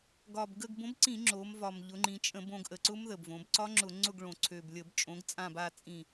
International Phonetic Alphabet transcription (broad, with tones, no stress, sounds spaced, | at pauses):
ɡ ɒ˨˩ b ɡ ə˦˨ ɡ b õ˨˥ b ǀ ĩ˧˩˧ ŋ͡ǁ o˩˧ m v ɒ˨˩ m ʎ ʊ˩˧ ŋ͡ǃ ĩ˩˧ t͡ʃʼ ə̃˧˩˧ b õ˩˧ ɡ ʔ ə˨˩ ǀ ʊ˦˥ m ð ə˨˩ b v õ˩˧ b ǀ ɒ˦˥ ŋ͡ǁ ʊ˧˩˧ ŋ͡ǀ ʊ˦˨ ɡ ɭ õ˨˩ ǀʰ ø˨˩ b lʲ ə˧˩˧ b t͡ʃʼ õ˨˥ ɡ t͡sʼ ã˦˨ b a˦˨ t͡sʼ ĩ˦˨